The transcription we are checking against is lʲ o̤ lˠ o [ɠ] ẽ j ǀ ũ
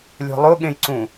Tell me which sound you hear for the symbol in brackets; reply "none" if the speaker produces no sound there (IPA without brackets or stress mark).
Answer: ɠ